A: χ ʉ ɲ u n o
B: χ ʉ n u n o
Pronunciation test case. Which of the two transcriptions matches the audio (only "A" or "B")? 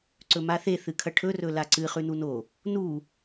B